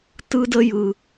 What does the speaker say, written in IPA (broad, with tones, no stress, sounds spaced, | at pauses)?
t ɯ˧ d ə˧ j ɯ˨